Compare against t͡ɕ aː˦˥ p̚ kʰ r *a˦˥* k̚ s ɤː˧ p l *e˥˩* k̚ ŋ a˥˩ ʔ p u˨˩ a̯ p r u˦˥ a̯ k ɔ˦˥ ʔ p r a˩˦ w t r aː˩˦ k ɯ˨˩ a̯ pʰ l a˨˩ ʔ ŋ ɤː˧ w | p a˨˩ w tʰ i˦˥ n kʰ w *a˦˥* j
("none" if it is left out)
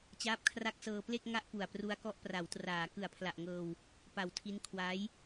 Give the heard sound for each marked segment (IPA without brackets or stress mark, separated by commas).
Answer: a˦˥, e˥˩, a˦˥